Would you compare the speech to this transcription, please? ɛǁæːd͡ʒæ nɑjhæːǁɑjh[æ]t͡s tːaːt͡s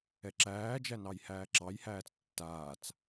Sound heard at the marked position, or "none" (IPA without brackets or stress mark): æː